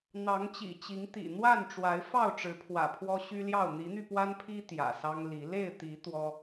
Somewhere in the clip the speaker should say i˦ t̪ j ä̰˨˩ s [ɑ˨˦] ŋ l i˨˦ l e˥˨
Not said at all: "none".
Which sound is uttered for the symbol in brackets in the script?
ɑ˦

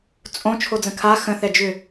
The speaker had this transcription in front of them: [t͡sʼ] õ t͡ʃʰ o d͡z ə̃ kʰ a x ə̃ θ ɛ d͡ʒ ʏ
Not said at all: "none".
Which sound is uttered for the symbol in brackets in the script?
t͡sʼ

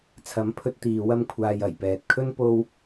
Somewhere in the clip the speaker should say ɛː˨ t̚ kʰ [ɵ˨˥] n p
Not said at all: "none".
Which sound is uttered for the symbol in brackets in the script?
ɵ˥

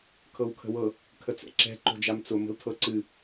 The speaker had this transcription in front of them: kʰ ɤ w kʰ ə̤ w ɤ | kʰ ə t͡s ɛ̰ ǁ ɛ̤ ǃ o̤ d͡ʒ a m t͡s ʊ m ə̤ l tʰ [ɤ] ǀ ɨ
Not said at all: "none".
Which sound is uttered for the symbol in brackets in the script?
ɤ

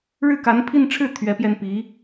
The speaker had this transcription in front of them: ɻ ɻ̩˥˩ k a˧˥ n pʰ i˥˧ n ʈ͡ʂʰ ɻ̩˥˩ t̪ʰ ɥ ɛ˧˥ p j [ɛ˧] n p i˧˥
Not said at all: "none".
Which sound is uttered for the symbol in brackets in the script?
ɛ˧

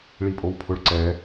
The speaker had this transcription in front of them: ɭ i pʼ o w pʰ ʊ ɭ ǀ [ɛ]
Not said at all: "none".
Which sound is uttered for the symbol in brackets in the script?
ɛ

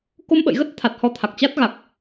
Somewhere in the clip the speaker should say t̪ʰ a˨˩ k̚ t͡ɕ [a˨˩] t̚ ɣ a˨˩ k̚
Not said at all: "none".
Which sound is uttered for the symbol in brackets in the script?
a˦˥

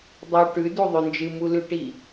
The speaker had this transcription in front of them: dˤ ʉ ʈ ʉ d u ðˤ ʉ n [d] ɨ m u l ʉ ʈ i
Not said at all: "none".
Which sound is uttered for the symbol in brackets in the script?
d͡ʒ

